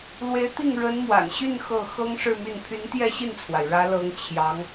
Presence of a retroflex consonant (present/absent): present